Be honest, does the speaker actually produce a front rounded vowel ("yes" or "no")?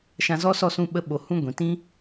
no